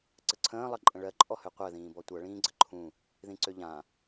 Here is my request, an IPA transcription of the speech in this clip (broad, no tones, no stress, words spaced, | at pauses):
ǀəǀʰə̃ː lˠʌǃʼə̃ɭɜ ǃʼɔhøqʷɜ ðĩːbɔtʷʌ ɭĩːɡ͡ǀəǃʰũ | ðĩǀøʎã